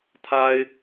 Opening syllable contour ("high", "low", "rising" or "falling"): high